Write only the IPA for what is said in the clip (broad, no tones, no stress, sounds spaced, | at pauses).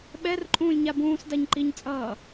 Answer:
ɓ ɛ r ǃʼ ũː lʲ ɲ a b ũː s d a ɲ ǃ i ɲ t͡sʼ ʌː